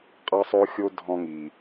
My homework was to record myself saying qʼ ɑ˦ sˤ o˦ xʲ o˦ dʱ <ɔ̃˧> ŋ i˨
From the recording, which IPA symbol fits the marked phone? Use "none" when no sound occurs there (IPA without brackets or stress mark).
ɔ̃˧